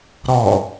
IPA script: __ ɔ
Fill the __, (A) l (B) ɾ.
B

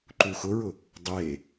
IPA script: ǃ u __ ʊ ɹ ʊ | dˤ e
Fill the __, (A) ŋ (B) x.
B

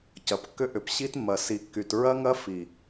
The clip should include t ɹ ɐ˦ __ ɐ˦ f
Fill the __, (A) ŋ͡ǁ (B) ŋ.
B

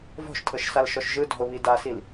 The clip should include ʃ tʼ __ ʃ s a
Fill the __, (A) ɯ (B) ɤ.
B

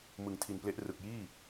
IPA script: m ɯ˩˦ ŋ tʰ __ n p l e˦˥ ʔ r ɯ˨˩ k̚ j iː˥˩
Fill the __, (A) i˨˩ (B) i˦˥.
A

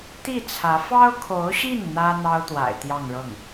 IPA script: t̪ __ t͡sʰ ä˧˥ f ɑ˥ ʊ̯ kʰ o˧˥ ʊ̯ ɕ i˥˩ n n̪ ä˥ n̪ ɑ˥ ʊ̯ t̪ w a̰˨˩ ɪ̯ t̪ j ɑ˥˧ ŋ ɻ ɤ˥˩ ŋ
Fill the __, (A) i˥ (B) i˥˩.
B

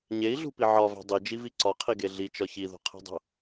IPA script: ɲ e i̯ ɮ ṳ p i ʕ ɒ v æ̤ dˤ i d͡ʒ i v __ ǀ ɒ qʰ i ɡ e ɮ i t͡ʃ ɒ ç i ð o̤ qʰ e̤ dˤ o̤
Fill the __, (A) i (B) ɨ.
A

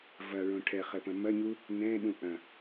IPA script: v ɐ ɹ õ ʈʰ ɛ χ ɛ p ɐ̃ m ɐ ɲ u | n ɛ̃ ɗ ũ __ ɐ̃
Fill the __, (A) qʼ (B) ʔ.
B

